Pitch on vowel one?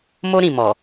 high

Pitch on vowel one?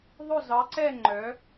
falling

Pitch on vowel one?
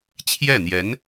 falling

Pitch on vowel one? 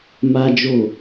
high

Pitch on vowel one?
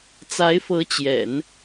rising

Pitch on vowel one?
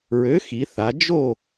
rising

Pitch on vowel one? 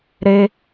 high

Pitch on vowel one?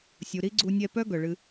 low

